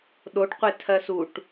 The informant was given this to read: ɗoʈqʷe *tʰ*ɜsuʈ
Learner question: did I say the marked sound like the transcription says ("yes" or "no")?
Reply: yes